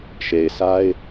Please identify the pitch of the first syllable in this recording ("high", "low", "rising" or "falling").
low